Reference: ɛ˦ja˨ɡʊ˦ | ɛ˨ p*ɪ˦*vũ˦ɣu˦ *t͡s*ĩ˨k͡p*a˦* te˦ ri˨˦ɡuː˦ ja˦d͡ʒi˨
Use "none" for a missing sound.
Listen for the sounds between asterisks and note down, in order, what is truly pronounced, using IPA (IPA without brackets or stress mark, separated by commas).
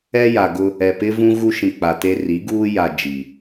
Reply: ɪ˦, ʃ, a˨